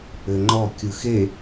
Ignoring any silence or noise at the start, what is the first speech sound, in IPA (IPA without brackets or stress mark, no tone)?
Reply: ɘ